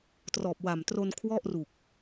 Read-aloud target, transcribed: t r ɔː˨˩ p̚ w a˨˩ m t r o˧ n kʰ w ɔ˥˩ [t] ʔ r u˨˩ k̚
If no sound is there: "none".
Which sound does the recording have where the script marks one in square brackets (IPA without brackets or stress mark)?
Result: none